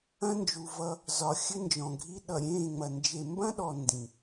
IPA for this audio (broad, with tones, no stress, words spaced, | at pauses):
ɐ̃˦nd͡ʒu˨vʌ˦ | zɒ˨ xʲɘ˦nd͡ʒɔ̃˨ɡʱi˦ ɗʌ˨ɾʲẽː˦˨ŋ͡mɐ˨ nd͡ʒe˨mbɐ̃˦ɗɔ˨ ndĩ˨